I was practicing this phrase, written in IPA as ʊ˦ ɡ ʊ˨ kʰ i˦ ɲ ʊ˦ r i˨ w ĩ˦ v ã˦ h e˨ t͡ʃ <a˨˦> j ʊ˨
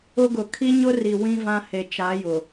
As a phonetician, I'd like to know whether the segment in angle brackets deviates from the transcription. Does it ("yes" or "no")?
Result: no